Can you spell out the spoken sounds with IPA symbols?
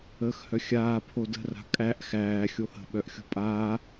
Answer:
əː x h œ xʲ aː pʰ o d ə̤ r a̤ kʼ æ ʔ x æː xʲ o h ə̤ ɓ œ ʔ xʲ o̤ pʼ aː

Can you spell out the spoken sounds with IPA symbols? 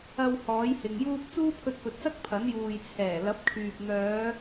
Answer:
ɐ˧ w h ɔː˨˥ j h ɪ˨ ŋ j uː˥ p̚ t͡s uː˥ pʰ ɵ˧ t̚ p ɵ˨ t̚ s ɐ˥ k̚ pʰ ɐ˨˥ n j uː˨ j t͡sʰ ɛː˨˩ l ɐ˨˥ p̚ kʰ yː˨ p̚ n̪ œː˨˧

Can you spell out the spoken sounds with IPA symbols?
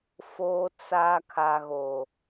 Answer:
f oː˨ t͡s aː˨ kʰ a˨ ɣ o˨

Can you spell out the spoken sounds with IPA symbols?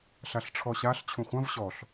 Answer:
ɬ a ɬ ʈ͡ʂʰ ɔ ɕ a ɬ t͡ɕʰ ũ χʷ ɐ̃ v ɕ ɔ ɬ

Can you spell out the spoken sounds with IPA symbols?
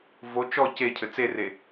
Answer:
v o t͡ʃ ɔ c e cʰ ɘ t͡s e r e

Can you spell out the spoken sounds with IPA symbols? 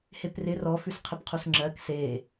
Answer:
h e p r ɪ r ɔ f ʉ s qʰ ɪ p qʰ u s ŋ͡ǁ ɜ k s e

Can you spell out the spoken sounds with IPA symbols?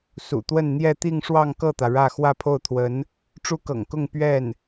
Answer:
s ṵ˨˩ t̪ w ə˥˧ n n̪ j ɛ˥˧ t̪ i˥˧ ŋ ʂ w ɑ˥˧ ŋ k ɤ˥˩ t̪ ä˩ ɻ ä˥˧ x w ä˥˧ pʰ o˥˩ ʊ̯ t̪ʰ w ə˧˥ n | ʈ͡ʂ u˥ k ɤ̰˨˩ ŋ k ʊ˥˧ ŋ p ɥ ɛ˥˩ n

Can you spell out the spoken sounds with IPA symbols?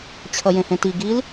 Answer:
t͡ɕʰ ʌ j ẽ h ẽ t i ɡ i l

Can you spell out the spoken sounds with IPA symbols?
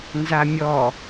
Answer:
n z a mʲ ɔ

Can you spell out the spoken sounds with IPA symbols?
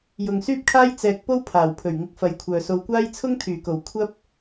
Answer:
j ʊ˨ ŋ s yː˥ p̚ kʰ aː˥ j t͡s ɛː˨ k̚ p o˥ w pʰ aː˨˩ w pʰ ɵ˨˩ ɥ ŋ ɪ˧ k̚ f ɐ˨ j kʷʰ œː˨ s o˧ w kʷ aː˥ j t͡sʰ ʊ˥ ŋ t̪ʰ yː˨˩ k o˨˩ w kʷʰ ɐ˥ p̚

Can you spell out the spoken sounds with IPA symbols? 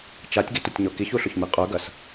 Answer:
t͡ʃ a tʲ ɡ i t ʊ tʲ ɲ o k i ç u ɬ ʊ ç m i qʼ œ ɡ ɐ s

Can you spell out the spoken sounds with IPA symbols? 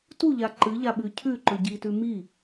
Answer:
t u ʎ a ǃ ɨ ʎ a ɓ ʉ cʰ ʉ ǃ ɵ ɟ i t ʉ m i

